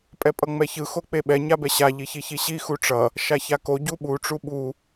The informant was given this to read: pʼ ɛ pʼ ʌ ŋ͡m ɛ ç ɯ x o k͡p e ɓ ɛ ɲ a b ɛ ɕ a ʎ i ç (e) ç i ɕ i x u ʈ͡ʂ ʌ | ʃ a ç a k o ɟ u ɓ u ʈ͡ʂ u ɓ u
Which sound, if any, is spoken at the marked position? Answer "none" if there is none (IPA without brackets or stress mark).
i